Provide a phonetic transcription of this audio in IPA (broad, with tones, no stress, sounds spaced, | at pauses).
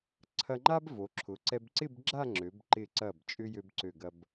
ǀʰ ɐ˧ ŋ͡ǃ a˥ b v o˩˧ ǁʰ ʊ˩˧ ǀ ɛ˧ b ǀ ɪ˥˧ b ɡ͡ǁ a˥˧ ŋ͡ǁ ø˩˧ b ǃ ɪ˧˩ ǀ ɐ˧˩ b t͡ʃʼ ʏ˧ j ø˧ b ǀ ø˧˩ ɡ ɐ˧ b